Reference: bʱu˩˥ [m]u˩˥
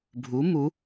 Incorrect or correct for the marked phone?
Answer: correct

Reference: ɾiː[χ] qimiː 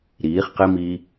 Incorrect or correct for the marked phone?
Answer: correct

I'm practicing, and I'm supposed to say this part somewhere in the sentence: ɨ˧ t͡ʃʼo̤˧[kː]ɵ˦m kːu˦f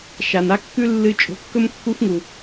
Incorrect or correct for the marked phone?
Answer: correct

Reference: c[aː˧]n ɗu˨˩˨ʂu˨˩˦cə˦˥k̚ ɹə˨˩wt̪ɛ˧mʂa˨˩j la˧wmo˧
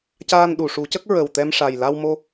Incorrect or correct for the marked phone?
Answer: correct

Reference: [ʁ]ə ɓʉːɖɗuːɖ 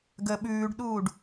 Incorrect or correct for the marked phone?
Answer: incorrect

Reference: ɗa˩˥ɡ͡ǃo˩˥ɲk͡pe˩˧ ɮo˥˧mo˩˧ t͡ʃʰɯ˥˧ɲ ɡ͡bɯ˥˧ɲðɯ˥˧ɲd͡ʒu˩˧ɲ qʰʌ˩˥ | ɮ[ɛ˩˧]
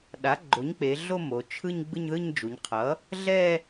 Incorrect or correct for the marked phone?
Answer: incorrect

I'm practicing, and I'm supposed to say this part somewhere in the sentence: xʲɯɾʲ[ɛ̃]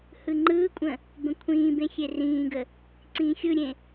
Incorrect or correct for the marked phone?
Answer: incorrect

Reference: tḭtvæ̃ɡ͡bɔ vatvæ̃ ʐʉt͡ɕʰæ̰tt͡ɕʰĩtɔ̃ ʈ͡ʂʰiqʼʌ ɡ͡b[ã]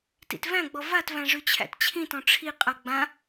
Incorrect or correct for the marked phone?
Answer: correct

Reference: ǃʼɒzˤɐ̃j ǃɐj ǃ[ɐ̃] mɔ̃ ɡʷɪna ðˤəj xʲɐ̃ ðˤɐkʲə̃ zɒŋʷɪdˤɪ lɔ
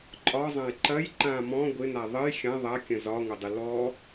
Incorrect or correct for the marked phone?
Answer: incorrect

